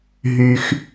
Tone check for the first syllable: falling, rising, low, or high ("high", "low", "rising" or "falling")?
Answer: low